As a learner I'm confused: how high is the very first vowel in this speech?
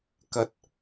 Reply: low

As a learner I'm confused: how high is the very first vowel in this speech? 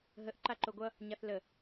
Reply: mid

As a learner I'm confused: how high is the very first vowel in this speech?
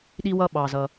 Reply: high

